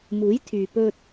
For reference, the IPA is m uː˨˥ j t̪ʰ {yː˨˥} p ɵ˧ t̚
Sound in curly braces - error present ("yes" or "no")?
yes